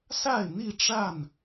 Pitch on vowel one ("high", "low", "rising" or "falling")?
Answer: falling